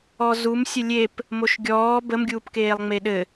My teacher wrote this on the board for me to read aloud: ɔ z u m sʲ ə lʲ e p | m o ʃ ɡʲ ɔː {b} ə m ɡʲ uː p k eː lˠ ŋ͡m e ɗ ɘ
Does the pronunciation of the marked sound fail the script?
no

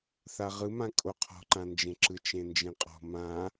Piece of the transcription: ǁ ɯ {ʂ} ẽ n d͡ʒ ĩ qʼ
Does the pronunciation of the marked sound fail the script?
yes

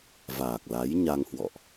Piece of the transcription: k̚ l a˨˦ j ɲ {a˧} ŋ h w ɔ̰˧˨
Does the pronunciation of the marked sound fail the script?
no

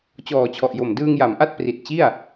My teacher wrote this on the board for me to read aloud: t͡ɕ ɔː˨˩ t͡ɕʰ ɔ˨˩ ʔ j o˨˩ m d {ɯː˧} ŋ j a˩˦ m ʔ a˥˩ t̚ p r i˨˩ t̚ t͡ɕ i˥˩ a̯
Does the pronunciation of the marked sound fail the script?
no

